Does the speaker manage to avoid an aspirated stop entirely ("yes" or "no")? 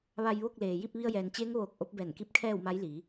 no